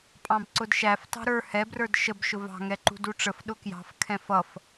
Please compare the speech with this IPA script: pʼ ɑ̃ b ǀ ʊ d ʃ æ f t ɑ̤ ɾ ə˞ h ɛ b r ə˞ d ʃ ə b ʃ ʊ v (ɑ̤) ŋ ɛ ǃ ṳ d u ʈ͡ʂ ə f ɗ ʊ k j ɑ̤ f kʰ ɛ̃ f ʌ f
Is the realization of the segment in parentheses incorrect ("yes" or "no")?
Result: no